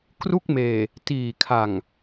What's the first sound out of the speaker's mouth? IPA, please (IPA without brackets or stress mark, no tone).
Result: k